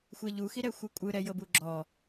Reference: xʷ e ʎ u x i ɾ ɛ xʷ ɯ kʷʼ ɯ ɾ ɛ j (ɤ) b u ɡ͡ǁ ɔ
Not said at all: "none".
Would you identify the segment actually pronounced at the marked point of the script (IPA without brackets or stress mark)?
ɤ